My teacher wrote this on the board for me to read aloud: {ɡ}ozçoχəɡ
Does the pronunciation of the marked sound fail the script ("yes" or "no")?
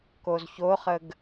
yes